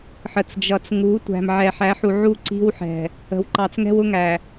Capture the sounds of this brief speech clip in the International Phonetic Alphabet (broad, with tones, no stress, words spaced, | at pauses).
ħə˨t͡sd͡ʒʌ˨t͡sŋu˨˦ tʷæ̤˨mʕɛ˨ħæ˨˦ħu˨ ʕu˦ǀi̤˦w ħɛ̤˨ | ə̤˨wǃɑ˨t͡s ŋɛ̤˦wʊ˦ŋæ˨